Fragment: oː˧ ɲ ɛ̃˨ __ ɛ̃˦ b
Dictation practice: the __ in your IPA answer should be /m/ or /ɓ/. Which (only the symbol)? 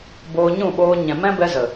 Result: m